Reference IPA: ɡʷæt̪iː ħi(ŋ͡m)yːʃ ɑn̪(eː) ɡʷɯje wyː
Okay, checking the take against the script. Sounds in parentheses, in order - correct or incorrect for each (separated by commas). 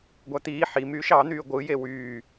incorrect, incorrect